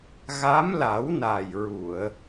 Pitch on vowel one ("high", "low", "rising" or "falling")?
rising